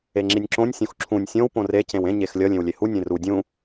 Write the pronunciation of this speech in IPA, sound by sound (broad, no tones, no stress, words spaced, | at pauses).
eŋ͡ǁinʲǁõnʲ sʲõxǁʰũnʲ sʲõw põre cẽwẽ ɲexlʲʌ lʲẽwlʲehu nʲẽru dʲũ